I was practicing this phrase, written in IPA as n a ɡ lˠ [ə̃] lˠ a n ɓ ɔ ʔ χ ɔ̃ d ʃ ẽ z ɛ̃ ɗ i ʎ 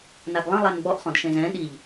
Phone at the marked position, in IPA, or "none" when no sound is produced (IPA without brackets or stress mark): ə̃